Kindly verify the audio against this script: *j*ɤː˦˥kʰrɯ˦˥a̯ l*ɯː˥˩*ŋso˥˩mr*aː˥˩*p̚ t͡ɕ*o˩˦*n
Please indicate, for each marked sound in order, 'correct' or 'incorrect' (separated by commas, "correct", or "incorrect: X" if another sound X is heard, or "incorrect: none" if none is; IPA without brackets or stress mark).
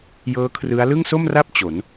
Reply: correct, incorrect: ɯ˥˩, incorrect: a˥˩, correct